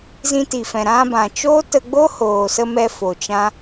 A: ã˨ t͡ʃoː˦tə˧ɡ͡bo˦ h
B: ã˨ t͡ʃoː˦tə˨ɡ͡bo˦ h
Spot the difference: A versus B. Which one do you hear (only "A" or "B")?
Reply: A